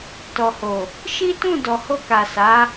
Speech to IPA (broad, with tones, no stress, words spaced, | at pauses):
tɔ˨ho˨ | ʃi˦tũ˦˨ dɔ˨ho˧ka˨ sa˨˦